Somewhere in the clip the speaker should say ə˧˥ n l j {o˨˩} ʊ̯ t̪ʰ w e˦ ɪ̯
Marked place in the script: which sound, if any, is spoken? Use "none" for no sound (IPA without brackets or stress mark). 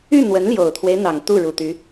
o˨˩